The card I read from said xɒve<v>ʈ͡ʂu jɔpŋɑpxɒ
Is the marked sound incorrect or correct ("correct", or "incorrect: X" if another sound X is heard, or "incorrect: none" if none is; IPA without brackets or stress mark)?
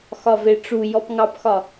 incorrect: none